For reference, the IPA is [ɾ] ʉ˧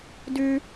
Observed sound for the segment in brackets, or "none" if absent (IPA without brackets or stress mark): d